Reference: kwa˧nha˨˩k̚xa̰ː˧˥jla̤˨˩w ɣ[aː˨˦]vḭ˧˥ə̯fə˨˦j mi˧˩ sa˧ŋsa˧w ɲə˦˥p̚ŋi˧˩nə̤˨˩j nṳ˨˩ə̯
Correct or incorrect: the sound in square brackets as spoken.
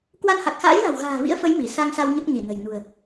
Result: incorrect: a̤ː˨˩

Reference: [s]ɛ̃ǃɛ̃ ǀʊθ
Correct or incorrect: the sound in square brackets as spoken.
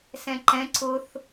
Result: correct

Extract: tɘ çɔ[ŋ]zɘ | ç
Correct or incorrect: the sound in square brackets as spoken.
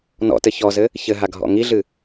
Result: incorrect: none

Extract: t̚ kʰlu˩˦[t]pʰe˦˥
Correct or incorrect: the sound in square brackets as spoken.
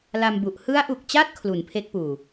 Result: incorrect: n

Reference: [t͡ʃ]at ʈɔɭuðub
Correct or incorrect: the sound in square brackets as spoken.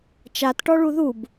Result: correct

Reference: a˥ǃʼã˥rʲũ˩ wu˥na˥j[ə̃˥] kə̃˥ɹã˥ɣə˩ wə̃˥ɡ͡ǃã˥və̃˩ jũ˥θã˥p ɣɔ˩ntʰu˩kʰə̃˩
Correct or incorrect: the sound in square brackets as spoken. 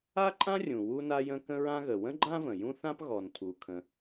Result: correct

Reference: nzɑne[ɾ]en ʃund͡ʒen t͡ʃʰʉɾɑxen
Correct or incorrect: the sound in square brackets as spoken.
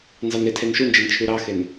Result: incorrect: tʰ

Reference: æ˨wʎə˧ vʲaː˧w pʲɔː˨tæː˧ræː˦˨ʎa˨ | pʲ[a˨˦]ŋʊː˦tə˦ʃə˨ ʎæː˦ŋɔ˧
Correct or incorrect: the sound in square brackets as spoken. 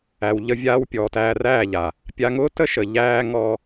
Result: incorrect: a˧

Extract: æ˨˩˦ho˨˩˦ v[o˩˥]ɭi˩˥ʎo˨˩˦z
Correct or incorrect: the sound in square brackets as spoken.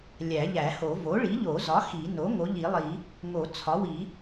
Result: correct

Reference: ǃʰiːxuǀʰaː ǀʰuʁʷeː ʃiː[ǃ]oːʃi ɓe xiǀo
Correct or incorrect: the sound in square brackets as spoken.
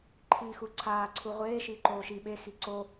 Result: correct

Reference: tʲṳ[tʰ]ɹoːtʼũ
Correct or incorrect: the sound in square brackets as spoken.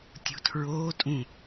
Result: correct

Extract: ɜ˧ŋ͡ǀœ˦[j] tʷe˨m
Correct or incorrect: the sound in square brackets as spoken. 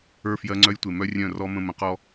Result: correct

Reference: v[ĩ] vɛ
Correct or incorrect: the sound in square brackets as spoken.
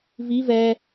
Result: incorrect: i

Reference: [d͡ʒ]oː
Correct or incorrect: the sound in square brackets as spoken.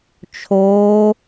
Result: incorrect: t͡ʃʰ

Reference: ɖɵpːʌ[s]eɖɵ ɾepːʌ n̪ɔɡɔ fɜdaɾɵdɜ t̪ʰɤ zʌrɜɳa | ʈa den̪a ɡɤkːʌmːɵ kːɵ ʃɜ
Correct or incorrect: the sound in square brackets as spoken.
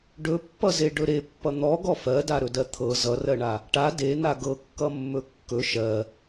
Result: incorrect: z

